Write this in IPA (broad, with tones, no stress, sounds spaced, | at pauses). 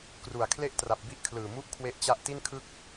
k r u˨˩ a̯ kʰ l e˥˩ ʔ t r a˨˩ p̚ b i˥˩ ʔ kʰ l ɯː˨˩ m u˥˩ ʔ kʰ w e˥˩ ʔ t͡ɕ a˥˩ ʔ t i˥˩ n kʰ ɯ˥˩ k̚